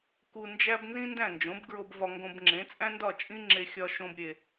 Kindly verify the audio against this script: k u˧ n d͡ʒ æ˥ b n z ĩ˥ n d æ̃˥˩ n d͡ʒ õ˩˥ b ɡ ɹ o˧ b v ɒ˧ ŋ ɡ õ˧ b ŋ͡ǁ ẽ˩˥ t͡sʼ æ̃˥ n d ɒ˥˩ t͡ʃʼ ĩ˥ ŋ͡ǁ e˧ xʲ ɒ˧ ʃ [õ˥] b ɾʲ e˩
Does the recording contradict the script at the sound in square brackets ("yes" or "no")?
yes